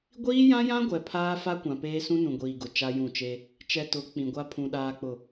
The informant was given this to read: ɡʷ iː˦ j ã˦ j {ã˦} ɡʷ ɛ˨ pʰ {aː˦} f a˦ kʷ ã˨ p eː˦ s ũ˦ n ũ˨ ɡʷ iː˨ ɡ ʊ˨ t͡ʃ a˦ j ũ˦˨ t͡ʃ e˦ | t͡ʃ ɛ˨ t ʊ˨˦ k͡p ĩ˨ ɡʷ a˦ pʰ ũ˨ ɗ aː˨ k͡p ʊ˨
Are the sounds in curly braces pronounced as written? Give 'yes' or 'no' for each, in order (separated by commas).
yes, yes